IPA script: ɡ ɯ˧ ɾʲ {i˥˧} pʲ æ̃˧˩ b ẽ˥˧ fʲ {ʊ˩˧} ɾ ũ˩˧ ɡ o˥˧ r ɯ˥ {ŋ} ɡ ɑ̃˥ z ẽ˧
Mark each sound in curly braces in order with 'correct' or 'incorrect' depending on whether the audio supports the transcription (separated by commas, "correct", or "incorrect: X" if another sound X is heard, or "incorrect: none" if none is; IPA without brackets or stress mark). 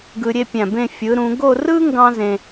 incorrect: e˥˧, incorrect: ɯ˩˧, correct